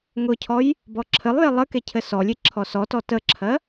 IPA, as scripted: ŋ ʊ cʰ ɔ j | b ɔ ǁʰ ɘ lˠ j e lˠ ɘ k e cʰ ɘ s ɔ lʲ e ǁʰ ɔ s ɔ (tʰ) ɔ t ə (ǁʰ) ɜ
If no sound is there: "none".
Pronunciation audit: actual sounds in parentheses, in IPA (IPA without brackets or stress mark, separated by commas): t, ǁʰ